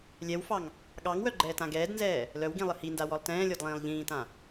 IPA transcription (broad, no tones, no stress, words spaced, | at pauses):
lʲɛwfɑŋ | ɠɑŋwœɡ͡ǃɛːtã ɡɛːdnzɛː | lœwɡĩlˠə hindawɔlˠ tɛ̃ːlʲɔdlˠĩːlˠ ʎĩːtã